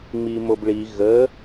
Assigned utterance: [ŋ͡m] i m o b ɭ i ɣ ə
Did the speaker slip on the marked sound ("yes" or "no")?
no